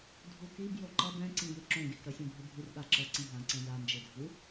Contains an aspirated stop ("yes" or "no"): no